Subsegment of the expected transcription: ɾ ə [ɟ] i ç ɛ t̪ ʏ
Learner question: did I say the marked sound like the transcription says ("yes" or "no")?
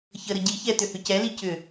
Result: yes